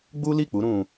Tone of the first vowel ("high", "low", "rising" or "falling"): high